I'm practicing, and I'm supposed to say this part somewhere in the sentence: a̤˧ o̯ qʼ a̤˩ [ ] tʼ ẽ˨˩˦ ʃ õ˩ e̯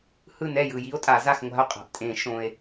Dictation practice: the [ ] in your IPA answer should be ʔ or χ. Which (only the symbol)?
ʔ